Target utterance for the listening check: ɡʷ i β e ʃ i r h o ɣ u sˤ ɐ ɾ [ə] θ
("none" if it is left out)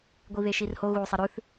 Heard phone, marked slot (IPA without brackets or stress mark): ʉ